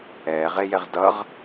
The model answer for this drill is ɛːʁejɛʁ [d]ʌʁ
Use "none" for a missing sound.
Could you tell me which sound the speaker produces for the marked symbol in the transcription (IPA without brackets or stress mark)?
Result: d